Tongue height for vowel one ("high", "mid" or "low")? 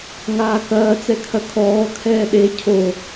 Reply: low